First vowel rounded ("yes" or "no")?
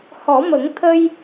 yes